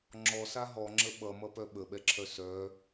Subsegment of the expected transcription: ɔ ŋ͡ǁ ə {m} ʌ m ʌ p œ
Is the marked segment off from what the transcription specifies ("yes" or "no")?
yes